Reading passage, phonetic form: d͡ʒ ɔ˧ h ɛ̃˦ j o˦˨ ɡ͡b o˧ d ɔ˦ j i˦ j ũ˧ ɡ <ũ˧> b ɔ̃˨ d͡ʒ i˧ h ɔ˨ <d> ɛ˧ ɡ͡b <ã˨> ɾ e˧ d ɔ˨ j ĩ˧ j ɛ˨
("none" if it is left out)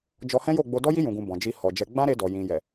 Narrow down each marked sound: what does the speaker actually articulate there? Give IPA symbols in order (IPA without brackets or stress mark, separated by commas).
ũ˧, d͡ʒ, ã˦